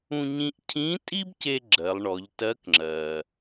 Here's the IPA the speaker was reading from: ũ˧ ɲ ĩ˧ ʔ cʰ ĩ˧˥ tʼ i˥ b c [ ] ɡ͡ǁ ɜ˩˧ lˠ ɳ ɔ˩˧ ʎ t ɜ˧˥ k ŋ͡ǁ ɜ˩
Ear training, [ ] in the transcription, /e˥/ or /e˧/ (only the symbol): e˧